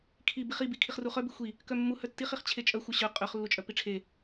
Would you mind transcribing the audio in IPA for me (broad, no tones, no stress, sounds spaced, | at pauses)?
kʰ i b i χ i b i kʰ i χ r u χ œ b i xʷ i | k œ mː u h œ tː i χ i χ t͡ɕʰ e t͡ʃʼ œ xʷ œ ɕ œ qʼ œ χ lː u t͡ʃʼ œ p i ʈ͡ʂʰ e